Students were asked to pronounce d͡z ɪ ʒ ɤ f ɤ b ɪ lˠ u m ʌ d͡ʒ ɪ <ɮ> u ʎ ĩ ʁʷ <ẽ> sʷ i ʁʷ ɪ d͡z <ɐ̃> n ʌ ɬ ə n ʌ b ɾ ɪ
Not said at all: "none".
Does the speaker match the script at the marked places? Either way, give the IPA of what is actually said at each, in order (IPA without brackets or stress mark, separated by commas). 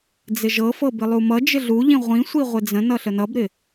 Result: ɮ, ĩ, ə̃